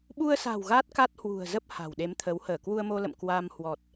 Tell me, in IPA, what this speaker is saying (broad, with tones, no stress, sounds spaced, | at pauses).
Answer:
ɓ u˧ ə̯ s a̤˨˩ w ɣ a˦˥ t̚ k a˦˥ t̚ h w ṳ˨˩ ə̯ z ə˦˥ p̚ h a̤˨˩ w ɗ e˨˦ m t̪ʰ ə˨˦ w h əː˧˩ k w u˧ ə̯ m o˧ l ə̰˧˨ m k w a˧ m h w ɔ˨˩ t̚